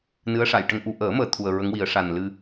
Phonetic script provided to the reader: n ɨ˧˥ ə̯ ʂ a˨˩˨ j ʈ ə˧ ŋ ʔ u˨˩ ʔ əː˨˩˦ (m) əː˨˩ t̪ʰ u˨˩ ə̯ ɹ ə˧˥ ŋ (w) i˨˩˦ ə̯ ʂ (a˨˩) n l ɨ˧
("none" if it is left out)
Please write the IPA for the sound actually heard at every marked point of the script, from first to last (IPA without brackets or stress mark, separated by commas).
m, w, a˨˩